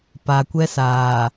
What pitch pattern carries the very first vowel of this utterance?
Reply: low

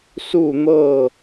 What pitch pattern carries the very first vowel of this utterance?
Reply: falling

